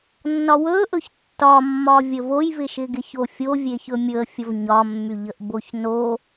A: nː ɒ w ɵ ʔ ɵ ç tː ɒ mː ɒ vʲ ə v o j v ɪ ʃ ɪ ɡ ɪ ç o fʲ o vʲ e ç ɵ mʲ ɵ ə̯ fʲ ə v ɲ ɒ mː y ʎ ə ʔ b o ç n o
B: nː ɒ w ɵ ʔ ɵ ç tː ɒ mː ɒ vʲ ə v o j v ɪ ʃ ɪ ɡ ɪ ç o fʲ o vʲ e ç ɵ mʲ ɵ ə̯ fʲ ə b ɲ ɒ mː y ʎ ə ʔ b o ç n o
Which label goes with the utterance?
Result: A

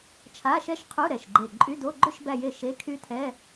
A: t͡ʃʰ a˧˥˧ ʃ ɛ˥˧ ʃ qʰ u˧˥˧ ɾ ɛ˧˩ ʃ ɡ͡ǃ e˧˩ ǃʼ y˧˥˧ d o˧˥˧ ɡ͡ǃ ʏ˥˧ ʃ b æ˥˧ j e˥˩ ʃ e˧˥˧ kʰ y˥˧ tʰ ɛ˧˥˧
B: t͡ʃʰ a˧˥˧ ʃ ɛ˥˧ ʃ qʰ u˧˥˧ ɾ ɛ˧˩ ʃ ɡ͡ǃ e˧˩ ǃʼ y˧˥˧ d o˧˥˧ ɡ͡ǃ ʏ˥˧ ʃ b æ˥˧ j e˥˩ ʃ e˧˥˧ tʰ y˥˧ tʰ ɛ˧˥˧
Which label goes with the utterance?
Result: A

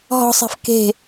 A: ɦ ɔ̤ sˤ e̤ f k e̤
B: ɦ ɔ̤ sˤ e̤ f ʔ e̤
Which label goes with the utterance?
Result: A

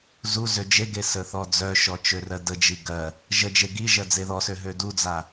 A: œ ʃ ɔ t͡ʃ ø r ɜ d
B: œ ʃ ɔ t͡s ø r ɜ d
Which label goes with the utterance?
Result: A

